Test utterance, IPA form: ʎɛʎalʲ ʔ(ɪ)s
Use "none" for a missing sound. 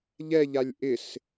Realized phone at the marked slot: ɪ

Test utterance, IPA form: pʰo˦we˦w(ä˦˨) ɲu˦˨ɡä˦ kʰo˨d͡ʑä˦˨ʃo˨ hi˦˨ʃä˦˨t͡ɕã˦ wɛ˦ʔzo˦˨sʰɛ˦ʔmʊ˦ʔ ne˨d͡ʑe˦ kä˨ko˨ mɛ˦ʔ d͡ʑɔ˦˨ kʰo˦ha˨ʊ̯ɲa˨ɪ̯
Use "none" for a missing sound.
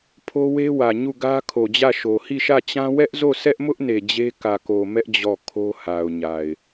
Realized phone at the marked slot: ä˨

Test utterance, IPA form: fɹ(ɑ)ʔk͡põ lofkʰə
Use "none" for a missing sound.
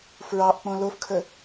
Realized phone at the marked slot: ɑ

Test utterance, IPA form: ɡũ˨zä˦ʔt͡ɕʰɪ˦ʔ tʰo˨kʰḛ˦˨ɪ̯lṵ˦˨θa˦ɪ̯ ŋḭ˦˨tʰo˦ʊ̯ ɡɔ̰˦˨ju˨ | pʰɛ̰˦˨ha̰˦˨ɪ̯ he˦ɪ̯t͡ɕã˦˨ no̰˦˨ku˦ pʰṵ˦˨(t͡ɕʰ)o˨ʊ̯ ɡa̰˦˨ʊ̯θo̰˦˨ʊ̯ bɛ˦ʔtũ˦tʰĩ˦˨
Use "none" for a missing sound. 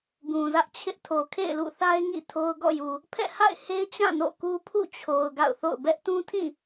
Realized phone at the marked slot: t͡ɕʰ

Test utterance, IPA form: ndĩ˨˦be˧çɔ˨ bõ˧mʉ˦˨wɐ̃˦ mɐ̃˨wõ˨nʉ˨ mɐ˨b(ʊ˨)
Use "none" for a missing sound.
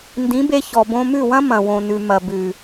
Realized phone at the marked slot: ʉ˨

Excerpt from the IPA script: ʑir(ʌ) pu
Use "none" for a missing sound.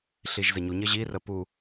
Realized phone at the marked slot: ə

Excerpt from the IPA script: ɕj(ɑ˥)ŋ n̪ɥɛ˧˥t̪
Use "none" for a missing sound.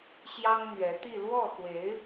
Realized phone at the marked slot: ɑ˥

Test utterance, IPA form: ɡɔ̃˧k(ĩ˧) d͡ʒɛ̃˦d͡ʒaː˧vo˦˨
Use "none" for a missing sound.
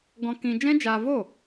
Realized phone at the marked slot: ĩ˧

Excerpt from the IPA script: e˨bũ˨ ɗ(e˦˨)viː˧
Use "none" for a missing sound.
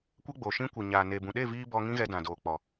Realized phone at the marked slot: e˦˨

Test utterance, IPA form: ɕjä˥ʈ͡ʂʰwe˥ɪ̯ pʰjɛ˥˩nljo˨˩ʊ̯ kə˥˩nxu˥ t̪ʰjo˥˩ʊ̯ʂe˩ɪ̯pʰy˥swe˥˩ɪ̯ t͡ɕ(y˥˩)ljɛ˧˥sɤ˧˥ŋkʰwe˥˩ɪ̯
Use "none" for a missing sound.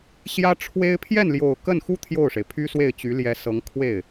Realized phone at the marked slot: y˧˥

